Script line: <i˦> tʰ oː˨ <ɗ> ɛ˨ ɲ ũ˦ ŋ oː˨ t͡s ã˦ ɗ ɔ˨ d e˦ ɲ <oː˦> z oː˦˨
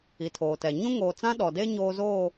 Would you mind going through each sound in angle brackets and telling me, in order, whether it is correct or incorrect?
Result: incorrect, incorrect, correct

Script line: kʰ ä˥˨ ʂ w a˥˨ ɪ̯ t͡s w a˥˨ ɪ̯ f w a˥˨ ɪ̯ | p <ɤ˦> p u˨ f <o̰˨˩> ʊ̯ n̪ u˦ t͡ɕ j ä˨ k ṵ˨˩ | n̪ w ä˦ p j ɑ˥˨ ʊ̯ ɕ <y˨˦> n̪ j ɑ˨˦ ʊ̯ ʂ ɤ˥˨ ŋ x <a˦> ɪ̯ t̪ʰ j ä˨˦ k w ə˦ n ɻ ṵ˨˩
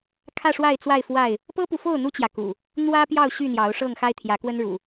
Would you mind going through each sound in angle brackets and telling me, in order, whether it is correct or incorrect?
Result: correct, incorrect, incorrect, correct

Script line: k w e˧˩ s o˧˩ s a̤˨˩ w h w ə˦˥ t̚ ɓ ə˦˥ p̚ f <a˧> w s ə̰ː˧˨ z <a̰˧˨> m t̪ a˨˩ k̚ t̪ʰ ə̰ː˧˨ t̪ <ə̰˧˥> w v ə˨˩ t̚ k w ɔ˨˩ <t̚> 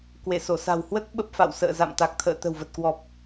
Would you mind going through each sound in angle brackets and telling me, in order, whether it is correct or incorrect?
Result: incorrect, correct, incorrect, incorrect

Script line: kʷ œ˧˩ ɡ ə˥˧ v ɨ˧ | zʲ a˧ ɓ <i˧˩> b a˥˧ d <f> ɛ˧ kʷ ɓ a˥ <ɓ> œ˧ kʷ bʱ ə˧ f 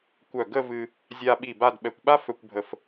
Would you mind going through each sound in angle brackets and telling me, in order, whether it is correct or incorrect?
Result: correct, incorrect, incorrect

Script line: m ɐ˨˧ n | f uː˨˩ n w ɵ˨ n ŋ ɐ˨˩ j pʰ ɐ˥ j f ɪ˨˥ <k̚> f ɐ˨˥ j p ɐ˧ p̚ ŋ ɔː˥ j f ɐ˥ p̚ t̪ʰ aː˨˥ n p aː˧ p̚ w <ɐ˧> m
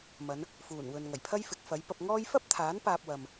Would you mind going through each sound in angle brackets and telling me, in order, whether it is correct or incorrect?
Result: correct, incorrect

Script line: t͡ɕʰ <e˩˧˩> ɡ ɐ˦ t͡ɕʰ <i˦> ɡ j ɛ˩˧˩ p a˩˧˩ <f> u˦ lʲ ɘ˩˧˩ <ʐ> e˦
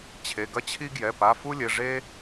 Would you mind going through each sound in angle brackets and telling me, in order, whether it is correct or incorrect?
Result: correct, correct, correct, correct

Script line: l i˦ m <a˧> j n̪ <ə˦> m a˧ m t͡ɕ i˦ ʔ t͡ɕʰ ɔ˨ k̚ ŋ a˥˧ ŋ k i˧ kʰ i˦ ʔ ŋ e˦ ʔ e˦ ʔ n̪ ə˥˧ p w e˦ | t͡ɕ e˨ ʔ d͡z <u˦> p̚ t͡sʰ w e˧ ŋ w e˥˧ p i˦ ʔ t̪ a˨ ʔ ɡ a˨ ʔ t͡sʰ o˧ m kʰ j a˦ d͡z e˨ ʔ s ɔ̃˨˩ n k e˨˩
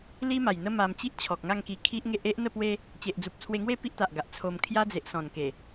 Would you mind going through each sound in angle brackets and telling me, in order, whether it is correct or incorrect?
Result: incorrect, correct, incorrect

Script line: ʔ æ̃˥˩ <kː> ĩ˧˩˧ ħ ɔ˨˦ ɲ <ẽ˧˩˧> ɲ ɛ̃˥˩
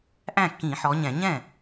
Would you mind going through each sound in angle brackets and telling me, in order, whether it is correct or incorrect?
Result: correct, incorrect

